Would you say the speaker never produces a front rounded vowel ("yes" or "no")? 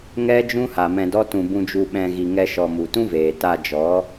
yes